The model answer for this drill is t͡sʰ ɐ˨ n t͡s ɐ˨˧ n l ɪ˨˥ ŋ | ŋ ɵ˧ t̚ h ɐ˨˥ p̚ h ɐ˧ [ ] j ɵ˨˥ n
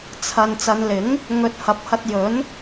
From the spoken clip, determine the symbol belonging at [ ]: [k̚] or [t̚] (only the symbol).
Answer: t̚